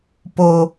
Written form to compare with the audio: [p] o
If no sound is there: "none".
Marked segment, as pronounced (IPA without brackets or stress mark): p